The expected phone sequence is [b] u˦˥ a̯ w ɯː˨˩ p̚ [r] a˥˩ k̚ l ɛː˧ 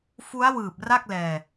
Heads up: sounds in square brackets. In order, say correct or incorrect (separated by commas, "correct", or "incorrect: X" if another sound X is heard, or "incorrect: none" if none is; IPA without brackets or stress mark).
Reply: incorrect: f, correct